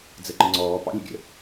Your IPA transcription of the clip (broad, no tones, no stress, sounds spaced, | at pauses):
d͡z ə ǃ ə ŋ͡ǀ ɔː p ɑ̰ lʲ ə̰ ɡʲ ə̰